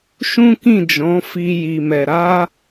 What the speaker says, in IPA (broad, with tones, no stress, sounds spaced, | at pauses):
ʃ ũ˦ k ĩ˦˨ d͡ʒ ɔ̃˨˦ f i˧ j i˨ m ɛ˨ ɾ a˧